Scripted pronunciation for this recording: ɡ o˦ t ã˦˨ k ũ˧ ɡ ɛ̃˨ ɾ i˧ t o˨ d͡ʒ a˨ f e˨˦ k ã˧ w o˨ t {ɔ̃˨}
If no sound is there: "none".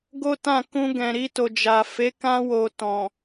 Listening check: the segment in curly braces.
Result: ɔ̃˨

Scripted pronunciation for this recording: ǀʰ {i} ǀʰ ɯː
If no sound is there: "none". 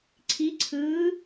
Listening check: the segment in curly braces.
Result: i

